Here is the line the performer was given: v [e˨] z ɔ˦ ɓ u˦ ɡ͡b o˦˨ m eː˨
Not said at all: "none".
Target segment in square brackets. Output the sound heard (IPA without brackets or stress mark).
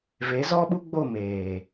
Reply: e˨˦